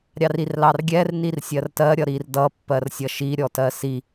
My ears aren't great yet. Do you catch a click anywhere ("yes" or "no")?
no